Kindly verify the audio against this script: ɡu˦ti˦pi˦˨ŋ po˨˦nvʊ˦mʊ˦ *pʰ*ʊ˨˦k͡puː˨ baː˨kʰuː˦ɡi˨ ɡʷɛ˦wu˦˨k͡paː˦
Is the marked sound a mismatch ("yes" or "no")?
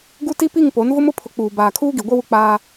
no